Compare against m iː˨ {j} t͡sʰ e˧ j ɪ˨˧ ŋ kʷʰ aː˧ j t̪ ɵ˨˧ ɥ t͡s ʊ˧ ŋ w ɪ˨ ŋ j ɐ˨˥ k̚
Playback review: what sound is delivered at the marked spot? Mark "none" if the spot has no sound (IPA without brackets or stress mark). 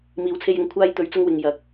w